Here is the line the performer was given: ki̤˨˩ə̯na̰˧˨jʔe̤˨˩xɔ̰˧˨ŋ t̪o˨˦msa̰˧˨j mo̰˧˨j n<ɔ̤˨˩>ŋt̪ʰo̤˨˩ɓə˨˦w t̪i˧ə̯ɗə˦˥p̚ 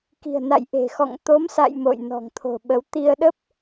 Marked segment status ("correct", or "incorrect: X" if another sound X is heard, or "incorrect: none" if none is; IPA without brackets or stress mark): correct